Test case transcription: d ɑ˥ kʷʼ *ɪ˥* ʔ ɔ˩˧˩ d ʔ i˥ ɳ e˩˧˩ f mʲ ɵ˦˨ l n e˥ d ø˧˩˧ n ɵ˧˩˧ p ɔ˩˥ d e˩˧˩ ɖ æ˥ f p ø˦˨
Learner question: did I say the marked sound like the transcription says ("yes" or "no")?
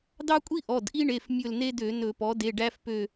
no